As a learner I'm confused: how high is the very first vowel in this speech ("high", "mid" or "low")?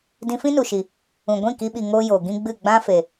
high